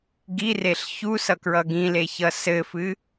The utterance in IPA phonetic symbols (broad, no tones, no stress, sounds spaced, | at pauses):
ɡ i r e ɬ ç u s ʌ k ɹ ʌ ɡ ĩ l e ç ʌ s ɘ f ɨ